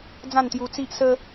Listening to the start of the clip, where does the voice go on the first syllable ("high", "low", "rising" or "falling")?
falling